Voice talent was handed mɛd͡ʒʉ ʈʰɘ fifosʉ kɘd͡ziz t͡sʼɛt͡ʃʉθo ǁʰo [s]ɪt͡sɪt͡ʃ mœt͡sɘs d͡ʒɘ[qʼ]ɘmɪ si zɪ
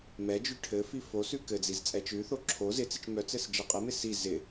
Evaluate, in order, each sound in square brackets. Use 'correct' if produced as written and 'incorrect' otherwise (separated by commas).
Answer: incorrect, correct